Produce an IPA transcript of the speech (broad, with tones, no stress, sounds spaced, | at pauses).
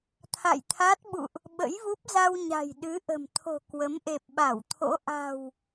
t̪ʰ a̰˧˨ j t̪ʰ a˦˥ t̚ ɓ ṵ˧˨ ʔ | ɓ ə̰˧˥ j v u˦˥ p̚ z a˧ w ɲ a̤˨˩ j ɗ ɨ˨˦ ʔ ə̤˨˩ m t̪ʰ o̤˨˩ k w ə˨˦ m ʔ e˨˩ p̚ ɓ a˧˩ w t̪ʰ o̰˧˥ ʔ a̤˨˩ w